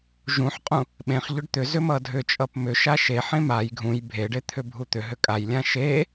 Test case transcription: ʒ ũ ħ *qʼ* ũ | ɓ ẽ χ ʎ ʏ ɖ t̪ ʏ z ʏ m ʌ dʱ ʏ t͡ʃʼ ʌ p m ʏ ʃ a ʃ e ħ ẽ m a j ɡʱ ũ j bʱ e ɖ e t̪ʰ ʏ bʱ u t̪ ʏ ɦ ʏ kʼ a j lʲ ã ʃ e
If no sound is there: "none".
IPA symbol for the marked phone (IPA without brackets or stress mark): qʼ